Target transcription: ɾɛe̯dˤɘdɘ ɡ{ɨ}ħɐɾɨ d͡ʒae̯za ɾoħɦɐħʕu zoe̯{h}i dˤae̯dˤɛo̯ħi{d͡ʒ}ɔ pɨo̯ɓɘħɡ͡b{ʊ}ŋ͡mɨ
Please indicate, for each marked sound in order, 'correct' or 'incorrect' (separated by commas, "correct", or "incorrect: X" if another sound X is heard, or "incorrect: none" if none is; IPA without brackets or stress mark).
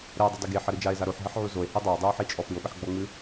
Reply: incorrect: e, correct, incorrect: t͡ʃʼ, incorrect: ɔ